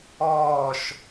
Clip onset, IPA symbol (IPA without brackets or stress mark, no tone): ɔː